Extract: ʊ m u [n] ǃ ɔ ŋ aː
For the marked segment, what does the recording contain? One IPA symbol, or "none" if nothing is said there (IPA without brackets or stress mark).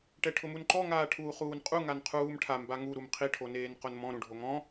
n